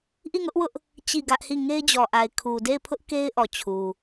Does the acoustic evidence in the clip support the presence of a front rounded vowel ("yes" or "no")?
no